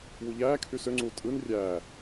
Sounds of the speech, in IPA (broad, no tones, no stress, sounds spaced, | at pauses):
w u ʎ æː kʰ y s ø ŋ͡ǀ u tʼ ɯ n rʲ æ